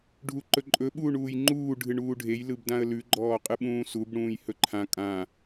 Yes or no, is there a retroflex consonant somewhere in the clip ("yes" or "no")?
yes